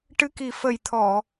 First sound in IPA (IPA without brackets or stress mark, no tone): ʈ